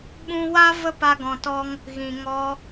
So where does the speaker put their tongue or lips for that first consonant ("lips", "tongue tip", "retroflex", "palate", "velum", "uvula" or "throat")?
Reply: lips